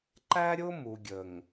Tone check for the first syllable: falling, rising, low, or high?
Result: high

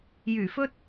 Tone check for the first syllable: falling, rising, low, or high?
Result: low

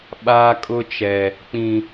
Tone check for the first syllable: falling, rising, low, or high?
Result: high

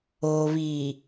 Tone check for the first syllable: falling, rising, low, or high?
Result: low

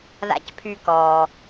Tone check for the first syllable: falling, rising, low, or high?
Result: low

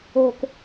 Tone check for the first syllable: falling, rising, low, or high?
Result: low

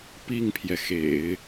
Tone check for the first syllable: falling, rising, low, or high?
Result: falling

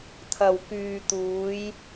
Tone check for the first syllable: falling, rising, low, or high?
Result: low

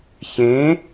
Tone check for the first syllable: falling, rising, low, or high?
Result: rising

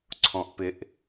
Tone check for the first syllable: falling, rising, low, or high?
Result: low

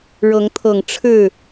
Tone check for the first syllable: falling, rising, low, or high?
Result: rising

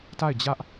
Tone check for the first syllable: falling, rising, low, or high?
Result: falling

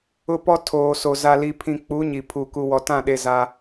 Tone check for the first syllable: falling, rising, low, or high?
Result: high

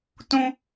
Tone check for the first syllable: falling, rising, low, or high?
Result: high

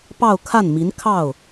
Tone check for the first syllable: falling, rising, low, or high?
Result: falling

